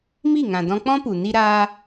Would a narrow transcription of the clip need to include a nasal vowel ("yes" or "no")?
yes